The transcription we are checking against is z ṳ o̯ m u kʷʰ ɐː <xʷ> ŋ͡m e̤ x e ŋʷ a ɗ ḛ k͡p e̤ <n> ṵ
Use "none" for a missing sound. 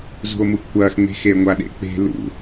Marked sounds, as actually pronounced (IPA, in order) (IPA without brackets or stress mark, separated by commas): x, l